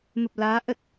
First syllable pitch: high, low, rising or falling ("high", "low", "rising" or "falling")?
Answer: low